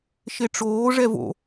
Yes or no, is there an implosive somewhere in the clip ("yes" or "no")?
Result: no